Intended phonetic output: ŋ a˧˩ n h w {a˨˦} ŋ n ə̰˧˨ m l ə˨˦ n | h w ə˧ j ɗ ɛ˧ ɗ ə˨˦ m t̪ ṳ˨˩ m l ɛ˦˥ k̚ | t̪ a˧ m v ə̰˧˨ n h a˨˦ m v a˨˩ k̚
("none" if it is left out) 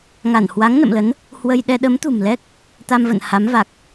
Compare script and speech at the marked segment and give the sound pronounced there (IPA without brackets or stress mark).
a˨˦